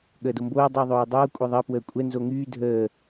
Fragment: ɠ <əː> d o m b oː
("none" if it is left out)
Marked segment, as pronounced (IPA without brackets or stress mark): əː